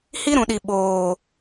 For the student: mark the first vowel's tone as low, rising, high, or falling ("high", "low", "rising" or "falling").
high